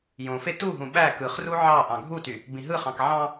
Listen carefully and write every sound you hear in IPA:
j õ f e t u ɦ ũ ɓ æ k ɯ χ r u ʕ ɑ ʔ ɑ̃ ɡʱ u t y | b ĩ ɦ ɯ χ ɑ̃ k ʕ ɑ̃

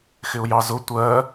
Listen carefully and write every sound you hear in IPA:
x ɪ ʊ̯ j ɑ z ʊ tʷ ɜ

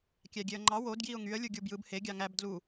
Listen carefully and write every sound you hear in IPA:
kʲ æ ɡʲ e ə̯ ŋ͡ǃ ɑ w o d ɡ j i ʊ̯ ŋ y ə̯ lʲ u ɡʲ u b j ɯ b h e ɡʲ ɑ ŋ æ b d l u

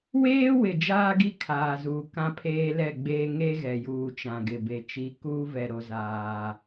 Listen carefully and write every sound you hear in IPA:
w eː˦ w ɪ˨ d͡ʒ aː˦ ɡ i˦˨ kʰ aː˨ z uː˨ k ã˦ pʰ eː˦ l ɛ˦˨ ɡ͡b eː˦ ŋ e˦ ɣ ɛ˨ j uː˨ t͡ʃ ã˨ ɡ ɪ˨ b e˨ t͡ʃ i˨˦ k uː˦ v ɛ˨ ɾ o˦ z aː˦

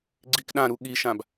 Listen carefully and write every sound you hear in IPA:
ɡ͡ǀ i k ɗ ã ɾ u ɠ i ʃ ã b

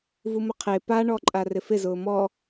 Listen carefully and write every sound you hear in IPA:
v u m ʊ qʰ e p a ɳ ɔ ǃʼ a r ɪ f ɪ z ʊː m ɔ

